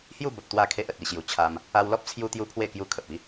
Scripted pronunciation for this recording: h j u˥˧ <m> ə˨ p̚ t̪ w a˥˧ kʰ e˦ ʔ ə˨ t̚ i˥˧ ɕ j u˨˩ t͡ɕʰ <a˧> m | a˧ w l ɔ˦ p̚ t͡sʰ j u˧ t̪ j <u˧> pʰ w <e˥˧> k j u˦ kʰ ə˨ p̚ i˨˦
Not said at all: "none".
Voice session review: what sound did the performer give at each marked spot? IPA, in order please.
b, a˧, u˧, e˥˧

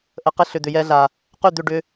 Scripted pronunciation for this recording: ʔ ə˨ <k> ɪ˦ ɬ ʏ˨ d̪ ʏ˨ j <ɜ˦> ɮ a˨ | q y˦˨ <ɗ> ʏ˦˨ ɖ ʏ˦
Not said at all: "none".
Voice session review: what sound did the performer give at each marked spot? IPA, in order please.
q, ɛ˦, d̪

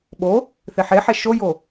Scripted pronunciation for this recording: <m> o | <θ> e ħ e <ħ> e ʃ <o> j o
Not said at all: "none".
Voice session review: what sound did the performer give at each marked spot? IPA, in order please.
ɓ, θ, ħ, o

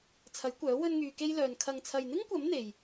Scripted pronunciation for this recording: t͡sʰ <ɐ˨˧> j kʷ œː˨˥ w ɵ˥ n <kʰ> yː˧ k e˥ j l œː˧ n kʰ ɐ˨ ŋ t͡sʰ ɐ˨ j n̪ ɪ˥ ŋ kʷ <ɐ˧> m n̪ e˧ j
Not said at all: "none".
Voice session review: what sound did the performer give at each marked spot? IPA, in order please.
ɐ˨˥, ŋ, ɐ˨˥

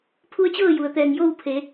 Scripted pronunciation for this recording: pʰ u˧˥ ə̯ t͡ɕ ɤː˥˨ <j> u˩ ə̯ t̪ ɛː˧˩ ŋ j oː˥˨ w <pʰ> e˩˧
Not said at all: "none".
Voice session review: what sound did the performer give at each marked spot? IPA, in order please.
j, pʰ

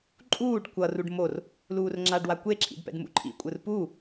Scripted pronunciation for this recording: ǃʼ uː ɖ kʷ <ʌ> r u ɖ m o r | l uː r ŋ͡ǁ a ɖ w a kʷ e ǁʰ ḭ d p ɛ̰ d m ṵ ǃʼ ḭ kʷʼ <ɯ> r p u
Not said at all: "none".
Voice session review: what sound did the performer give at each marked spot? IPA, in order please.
ʌ, ɯ

